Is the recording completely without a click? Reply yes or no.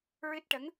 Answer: yes